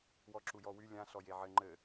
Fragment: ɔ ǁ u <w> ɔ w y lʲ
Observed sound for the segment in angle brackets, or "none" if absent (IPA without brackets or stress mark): j